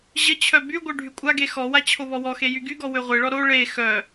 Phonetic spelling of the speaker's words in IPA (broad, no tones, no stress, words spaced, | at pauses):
ʑət͡ɕʰœ byɡʷœ ɖʱykʷʼaɡe xɔwa t͡ɕʰoβɔwɔxe jyɡyɡɔ wøʁʷeɭɔ ɾo ɭe xœ